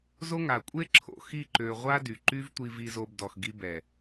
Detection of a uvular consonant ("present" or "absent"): present